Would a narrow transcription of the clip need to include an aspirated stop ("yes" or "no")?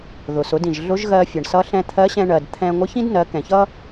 yes